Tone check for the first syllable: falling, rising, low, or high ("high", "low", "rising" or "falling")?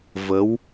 rising